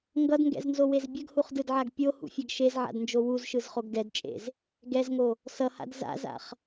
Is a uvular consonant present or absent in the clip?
present